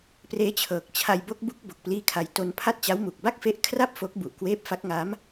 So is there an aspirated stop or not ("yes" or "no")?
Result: yes